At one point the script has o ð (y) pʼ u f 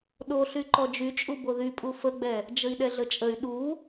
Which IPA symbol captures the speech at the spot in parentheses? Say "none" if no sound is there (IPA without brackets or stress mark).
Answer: y